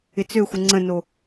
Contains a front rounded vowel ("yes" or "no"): yes